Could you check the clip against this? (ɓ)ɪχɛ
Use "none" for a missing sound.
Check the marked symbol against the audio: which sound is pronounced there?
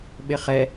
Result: ɓ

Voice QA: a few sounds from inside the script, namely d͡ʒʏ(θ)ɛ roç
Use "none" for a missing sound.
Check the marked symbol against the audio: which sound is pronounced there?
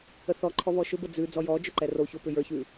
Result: ǃ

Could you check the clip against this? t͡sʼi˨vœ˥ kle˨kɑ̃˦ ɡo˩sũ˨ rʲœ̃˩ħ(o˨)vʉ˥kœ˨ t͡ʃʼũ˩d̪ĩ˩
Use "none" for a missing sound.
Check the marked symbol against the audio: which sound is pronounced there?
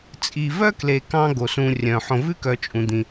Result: õ˨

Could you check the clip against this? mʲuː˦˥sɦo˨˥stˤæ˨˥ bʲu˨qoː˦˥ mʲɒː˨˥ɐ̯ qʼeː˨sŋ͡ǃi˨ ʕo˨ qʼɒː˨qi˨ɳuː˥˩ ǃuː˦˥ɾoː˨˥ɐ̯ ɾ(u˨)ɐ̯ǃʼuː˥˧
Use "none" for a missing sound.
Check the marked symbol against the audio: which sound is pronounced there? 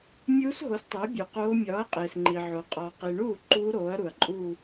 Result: u˨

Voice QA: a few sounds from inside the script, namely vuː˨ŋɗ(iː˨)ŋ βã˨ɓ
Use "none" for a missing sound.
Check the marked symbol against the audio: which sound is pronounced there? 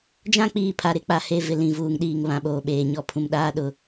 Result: iː˨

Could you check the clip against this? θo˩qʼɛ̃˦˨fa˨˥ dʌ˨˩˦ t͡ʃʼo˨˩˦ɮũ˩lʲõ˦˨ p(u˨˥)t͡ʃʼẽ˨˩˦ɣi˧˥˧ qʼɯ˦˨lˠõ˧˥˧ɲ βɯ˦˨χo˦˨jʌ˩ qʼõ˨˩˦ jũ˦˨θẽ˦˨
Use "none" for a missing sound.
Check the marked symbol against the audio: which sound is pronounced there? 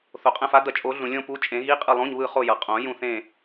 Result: u˨˥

